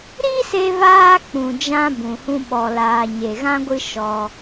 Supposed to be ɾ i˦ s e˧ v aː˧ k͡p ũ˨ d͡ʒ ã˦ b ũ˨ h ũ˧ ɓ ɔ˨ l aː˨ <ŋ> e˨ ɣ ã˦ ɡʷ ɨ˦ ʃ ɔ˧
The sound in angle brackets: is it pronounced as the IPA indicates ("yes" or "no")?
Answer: no